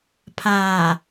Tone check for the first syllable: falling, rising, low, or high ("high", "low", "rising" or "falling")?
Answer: low